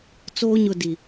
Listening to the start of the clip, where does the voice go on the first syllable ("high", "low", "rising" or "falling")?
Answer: high